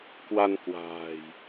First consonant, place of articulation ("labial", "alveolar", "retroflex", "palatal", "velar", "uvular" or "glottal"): velar